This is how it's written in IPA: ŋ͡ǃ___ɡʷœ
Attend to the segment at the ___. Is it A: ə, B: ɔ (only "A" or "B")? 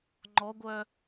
B